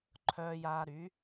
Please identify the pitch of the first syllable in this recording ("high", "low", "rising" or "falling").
low